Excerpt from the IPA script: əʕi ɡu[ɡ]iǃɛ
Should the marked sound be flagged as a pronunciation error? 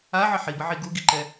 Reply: no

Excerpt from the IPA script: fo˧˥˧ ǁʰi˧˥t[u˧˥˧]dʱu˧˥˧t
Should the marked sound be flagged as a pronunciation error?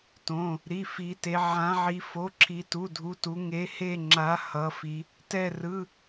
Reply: no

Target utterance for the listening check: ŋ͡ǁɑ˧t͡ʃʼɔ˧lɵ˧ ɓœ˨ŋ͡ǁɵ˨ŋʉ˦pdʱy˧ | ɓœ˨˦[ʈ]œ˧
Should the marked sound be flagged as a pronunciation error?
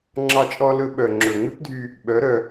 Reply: yes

